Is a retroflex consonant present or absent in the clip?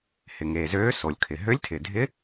absent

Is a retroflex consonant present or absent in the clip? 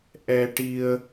present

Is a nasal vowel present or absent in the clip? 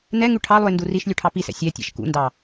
absent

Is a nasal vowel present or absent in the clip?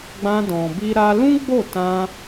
present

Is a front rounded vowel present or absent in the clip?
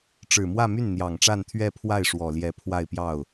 present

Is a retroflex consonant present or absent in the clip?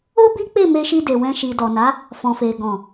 absent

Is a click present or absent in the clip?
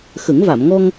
absent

